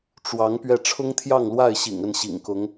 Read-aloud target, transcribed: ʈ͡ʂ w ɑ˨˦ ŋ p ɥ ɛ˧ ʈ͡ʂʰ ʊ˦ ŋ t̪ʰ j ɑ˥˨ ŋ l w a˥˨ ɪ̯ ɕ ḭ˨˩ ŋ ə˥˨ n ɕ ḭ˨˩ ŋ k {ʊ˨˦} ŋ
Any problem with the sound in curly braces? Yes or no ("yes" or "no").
no